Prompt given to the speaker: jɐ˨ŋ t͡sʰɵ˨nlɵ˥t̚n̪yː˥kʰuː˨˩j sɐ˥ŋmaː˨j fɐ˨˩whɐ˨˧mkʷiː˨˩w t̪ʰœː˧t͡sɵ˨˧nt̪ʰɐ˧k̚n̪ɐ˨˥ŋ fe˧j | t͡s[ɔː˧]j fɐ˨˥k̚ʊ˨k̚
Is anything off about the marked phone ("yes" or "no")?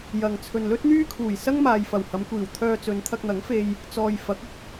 yes